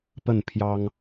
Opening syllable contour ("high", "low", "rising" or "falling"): falling